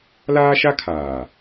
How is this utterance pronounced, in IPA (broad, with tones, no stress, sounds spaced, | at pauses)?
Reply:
l aː˦ ʃ a˦ kʰ aː˨